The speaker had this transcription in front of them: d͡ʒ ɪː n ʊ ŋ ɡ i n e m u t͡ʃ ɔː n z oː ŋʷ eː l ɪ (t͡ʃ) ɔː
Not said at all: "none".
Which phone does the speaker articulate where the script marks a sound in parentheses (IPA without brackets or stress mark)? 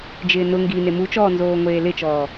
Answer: t͡ʃ